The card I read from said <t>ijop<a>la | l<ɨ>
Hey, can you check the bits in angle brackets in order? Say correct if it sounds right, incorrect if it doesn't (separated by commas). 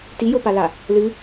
correct, correct, correct